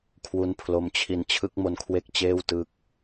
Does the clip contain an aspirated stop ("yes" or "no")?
yes